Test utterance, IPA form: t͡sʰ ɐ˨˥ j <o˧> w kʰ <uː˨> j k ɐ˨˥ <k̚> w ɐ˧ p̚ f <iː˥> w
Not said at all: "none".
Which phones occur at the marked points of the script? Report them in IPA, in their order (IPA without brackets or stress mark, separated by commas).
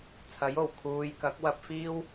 o˨˩, uː˨, k̚, iː˥